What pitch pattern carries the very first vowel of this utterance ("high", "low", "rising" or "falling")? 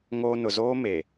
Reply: high